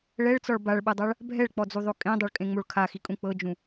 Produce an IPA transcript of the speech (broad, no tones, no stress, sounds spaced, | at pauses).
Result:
ɭ ɛ ɭ t͡s ɔ ɭ b a ɭ ɓ ɯ dˤ a ɭ | bʱ ɛ ɭ k͡p ɔ d͡z u ðˤ o kʼ ẽ dˤ o ɭ kʼ ẽ ŋ͡m o ɭ kʰ a x i kʼ ũ k͡p ɤ d͡ʒ ũ